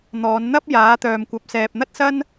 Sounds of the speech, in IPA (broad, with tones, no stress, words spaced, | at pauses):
n̪ɔː˨˧n n̪ɐ˥p̚ jaː˨˥t̪œː˨mkʷɐ˨˥p̚ sɛː˨p̚n̪ɐ˥t̚sɐ˥n